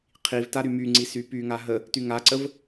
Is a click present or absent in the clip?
present